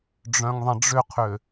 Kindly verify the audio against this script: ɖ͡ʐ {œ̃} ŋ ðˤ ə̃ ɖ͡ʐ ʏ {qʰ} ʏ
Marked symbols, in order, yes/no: yes, yes

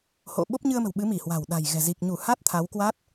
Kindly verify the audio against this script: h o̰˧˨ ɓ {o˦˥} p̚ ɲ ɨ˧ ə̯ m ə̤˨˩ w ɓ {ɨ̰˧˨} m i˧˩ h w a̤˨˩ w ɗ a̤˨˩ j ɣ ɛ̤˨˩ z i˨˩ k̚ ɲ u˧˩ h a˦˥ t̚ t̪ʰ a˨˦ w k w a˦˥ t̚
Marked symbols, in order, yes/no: yes, no

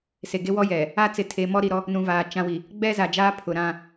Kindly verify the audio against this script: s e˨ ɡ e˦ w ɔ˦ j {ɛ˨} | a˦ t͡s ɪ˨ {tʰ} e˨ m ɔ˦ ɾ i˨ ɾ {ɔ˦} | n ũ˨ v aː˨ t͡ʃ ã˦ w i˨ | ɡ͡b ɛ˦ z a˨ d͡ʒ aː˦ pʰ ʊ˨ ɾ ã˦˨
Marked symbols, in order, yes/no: yes, yes, yes

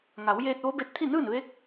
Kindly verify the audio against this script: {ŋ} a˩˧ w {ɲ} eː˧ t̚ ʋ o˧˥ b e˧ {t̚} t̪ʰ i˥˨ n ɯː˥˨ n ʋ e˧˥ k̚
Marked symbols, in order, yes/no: yes, no, yes

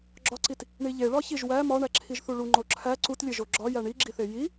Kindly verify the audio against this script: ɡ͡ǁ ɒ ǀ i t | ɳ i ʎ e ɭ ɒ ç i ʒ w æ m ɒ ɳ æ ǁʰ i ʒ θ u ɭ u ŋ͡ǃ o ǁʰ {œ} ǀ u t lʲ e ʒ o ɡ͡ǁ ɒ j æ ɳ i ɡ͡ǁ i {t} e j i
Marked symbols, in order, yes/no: no, no

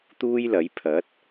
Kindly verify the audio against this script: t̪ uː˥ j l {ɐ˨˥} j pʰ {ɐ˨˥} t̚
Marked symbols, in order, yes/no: yes, yes

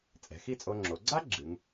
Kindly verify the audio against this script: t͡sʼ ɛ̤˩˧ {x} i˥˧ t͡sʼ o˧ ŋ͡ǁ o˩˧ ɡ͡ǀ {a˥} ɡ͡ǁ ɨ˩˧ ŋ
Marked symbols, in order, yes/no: yes, yes

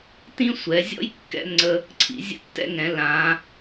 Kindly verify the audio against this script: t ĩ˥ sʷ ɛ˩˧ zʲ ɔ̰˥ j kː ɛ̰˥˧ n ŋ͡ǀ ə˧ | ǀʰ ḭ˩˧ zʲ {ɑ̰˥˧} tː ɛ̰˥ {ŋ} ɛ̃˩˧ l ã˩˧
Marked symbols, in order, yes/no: no, yes

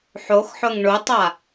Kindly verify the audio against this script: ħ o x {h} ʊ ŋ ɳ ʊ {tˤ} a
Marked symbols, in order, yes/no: no, yes

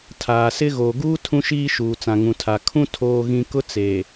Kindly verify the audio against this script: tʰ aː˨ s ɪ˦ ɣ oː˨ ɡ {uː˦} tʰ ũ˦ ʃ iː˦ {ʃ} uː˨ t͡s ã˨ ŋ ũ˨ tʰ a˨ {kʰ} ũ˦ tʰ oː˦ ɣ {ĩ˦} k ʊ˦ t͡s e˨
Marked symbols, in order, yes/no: yes, yes, yes, yes

